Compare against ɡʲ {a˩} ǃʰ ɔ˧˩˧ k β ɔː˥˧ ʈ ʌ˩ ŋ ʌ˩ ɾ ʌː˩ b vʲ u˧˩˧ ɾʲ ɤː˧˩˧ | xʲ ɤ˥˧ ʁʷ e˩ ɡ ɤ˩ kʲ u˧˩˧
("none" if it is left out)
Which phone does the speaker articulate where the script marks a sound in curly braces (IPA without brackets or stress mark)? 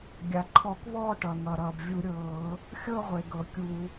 a˩